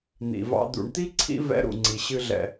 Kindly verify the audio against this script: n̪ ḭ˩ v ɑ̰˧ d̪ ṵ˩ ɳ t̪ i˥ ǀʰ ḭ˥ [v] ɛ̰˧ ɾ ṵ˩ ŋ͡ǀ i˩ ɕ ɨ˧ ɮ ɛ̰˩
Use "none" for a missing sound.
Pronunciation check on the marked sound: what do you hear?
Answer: v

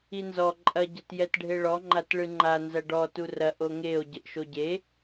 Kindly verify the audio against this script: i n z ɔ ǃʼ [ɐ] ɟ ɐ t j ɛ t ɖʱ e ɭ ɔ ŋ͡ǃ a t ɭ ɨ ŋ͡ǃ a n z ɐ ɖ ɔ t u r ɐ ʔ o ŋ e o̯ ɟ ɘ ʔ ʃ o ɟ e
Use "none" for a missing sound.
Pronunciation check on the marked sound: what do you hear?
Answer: ɐ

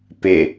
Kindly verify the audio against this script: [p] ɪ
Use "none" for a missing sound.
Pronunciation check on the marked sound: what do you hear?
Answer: p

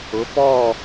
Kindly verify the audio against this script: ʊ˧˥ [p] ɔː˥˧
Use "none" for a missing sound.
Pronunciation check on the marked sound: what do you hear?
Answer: p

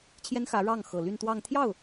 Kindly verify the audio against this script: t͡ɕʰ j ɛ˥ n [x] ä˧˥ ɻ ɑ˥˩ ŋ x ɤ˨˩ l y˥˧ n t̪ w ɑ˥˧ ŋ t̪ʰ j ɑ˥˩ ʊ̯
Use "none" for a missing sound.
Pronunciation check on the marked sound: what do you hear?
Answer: x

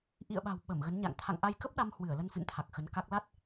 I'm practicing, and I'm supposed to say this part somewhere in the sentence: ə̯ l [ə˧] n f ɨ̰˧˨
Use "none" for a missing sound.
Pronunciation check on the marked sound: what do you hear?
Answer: ə˧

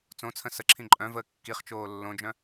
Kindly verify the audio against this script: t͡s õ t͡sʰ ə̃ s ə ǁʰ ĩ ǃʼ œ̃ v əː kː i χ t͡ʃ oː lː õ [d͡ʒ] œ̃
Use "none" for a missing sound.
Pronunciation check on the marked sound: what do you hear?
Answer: d͡ʒ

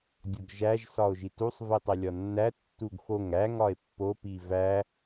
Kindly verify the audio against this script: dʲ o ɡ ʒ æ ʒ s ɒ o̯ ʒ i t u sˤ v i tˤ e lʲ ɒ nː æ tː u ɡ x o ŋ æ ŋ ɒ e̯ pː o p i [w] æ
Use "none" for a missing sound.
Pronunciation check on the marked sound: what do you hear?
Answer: v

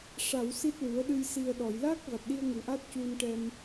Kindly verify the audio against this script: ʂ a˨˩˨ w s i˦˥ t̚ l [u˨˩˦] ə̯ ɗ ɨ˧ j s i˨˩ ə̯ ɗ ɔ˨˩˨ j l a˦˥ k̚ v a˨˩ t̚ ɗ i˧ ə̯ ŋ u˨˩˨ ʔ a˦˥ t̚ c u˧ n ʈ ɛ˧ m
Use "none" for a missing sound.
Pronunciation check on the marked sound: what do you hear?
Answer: u˨˩˦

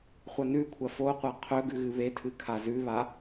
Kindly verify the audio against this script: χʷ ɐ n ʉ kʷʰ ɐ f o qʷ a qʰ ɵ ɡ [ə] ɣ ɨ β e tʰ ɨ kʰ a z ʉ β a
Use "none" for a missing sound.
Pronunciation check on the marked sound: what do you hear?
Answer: ʉ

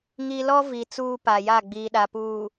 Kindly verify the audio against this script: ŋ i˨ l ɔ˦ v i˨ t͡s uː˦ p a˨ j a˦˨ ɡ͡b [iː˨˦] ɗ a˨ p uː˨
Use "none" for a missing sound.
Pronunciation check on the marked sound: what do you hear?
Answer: iː˨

